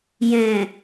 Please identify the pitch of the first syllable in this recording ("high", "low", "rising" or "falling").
low